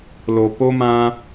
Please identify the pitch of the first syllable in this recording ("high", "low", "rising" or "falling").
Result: low